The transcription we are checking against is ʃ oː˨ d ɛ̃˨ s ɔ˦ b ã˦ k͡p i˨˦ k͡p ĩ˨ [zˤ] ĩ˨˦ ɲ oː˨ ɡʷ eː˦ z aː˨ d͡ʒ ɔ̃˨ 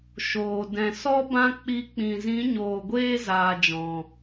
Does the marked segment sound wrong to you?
yes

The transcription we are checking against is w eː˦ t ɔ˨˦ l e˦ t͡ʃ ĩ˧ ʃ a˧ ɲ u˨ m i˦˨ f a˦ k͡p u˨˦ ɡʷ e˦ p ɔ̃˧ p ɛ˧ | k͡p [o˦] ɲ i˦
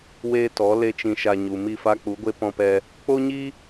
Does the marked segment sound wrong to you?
no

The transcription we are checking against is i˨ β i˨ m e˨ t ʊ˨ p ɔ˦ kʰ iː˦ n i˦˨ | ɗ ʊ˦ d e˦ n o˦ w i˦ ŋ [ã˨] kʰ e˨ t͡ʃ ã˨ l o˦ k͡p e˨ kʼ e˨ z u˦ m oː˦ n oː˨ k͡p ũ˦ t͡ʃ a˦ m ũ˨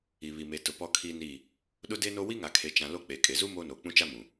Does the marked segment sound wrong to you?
yes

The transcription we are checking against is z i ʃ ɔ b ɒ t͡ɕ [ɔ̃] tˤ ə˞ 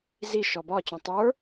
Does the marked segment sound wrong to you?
no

